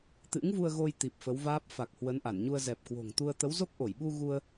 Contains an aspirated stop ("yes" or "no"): no